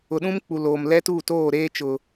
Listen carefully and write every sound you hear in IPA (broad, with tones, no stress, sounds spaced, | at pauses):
ʊ˨ ɗ ũ˦ m k͡p u˨ l oː˨ m l ɛ˦ t uː˦˨ t oː˦˨ ɾ eː˦ t͡ʃ ʊ˨